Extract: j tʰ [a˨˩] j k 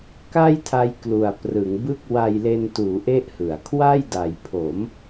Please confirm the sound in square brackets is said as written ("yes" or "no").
no